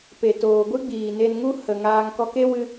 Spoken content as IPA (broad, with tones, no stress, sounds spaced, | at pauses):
p e˨ t oː˨ ɡʷ ɨ˦ ɡ͡b iː˨ n e˧ n ŋ u˦ h ə˨ ŋ aː˧ ŋ k ɔ˧ k e˦ w ɨ˧